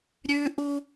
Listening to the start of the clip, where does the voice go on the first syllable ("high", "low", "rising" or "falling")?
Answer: high